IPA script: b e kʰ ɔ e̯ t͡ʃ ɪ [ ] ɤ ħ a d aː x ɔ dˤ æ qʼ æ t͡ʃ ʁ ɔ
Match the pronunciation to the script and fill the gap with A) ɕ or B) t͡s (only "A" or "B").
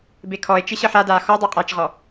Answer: A